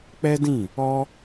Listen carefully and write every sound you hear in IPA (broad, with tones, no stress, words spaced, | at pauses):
k͡pɛ˦dĩ˦˨ | ɔ˦